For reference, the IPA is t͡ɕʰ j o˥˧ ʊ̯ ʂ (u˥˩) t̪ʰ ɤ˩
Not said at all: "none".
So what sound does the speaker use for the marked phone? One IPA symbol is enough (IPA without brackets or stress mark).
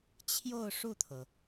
u˥˩